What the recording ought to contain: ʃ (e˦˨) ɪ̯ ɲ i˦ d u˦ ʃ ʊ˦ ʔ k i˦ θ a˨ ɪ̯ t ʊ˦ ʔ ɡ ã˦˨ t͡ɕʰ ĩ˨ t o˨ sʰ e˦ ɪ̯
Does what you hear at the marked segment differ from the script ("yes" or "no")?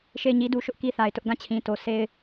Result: no